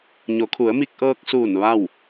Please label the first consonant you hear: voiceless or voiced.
voiced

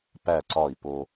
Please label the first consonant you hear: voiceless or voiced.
voiceless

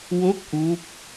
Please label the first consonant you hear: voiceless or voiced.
voiced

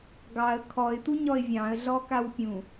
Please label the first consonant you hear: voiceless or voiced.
voiced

